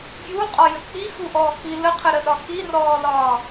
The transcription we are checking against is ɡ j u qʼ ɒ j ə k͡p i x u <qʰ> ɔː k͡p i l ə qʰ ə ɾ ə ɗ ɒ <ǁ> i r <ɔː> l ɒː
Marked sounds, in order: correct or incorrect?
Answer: incorrect, incorrect, correct

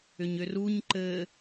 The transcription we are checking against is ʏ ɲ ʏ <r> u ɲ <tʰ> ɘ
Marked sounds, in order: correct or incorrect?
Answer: correct, incorrect

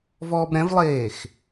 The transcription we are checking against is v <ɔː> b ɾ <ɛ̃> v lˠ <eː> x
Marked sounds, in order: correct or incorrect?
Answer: correct, correct, correct

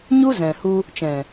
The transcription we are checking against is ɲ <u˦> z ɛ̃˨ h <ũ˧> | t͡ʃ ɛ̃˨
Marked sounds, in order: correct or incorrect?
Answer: correct, incorrect

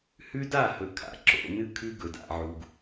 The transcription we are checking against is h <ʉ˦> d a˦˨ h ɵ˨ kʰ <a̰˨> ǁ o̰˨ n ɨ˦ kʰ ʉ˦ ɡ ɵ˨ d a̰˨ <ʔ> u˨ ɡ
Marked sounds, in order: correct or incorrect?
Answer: correct, correct, incorrect

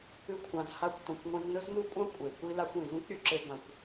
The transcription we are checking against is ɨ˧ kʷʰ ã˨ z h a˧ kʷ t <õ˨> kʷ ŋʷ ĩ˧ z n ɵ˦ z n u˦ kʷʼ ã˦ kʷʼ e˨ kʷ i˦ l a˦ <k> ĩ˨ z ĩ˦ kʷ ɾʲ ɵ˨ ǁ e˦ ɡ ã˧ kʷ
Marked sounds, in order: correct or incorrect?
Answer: correct, incorrect

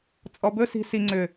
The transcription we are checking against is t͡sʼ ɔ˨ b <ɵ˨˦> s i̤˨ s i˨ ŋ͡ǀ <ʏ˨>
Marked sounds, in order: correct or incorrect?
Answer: incorrect, correct

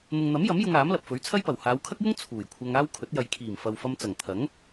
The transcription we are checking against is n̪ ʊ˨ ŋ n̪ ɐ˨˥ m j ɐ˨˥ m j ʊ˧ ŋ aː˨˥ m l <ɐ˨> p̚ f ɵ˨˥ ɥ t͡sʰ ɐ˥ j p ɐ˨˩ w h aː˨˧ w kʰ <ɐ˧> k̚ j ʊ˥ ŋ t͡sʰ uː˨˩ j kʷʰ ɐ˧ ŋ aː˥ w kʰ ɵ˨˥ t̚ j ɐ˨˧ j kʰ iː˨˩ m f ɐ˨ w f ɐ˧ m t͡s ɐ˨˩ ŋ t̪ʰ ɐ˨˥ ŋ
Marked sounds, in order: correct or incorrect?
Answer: correct, incorrect

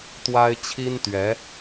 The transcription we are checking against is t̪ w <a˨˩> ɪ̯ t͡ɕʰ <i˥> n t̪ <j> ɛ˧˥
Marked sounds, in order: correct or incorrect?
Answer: incorrect, correct, incorrect

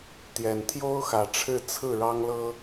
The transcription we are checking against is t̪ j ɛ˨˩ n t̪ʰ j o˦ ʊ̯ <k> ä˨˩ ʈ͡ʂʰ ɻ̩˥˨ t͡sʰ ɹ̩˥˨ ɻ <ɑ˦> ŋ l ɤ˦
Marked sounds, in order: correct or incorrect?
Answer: incorrect, correct

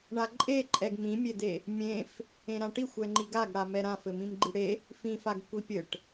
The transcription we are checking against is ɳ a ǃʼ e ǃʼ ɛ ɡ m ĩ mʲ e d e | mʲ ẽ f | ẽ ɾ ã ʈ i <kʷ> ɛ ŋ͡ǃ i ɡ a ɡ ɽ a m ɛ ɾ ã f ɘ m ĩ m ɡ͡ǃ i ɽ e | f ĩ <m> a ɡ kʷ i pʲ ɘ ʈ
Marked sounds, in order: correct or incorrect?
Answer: incorrect, incorrect

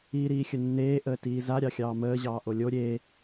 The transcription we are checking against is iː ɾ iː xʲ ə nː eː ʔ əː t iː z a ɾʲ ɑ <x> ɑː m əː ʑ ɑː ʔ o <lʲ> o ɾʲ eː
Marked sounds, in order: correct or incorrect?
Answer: incorrect, correct

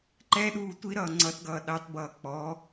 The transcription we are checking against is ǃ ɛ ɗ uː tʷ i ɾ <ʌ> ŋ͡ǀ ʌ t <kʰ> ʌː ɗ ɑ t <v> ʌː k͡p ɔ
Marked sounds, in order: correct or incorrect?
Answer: incorrect, incorrect, incorrect

